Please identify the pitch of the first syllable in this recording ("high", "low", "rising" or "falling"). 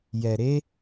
low